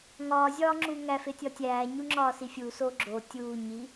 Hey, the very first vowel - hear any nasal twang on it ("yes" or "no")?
no